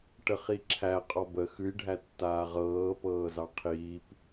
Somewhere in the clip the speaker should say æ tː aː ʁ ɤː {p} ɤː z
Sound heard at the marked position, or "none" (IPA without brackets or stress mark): p